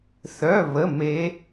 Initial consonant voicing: voiceless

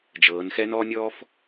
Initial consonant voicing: voiced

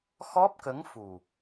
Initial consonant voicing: voiceless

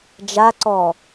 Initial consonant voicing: voiced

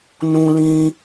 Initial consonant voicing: voiced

